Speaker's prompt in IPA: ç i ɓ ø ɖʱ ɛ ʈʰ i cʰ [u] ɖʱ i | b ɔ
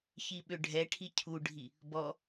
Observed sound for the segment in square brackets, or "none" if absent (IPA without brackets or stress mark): u